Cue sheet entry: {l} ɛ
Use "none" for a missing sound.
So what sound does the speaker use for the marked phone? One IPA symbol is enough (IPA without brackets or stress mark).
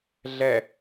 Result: ɮ